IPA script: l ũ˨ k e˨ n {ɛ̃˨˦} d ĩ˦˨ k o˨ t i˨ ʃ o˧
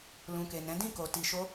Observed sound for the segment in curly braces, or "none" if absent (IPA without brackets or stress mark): ɛ̃˨˦